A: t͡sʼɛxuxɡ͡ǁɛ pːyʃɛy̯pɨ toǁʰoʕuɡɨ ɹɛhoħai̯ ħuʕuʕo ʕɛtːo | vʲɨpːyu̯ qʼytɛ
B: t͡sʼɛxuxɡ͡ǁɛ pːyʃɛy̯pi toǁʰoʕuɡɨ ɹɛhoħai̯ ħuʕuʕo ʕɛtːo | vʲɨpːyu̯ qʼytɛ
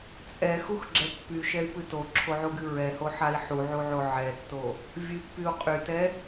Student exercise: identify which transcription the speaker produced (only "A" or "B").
A